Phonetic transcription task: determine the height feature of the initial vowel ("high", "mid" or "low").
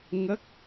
mid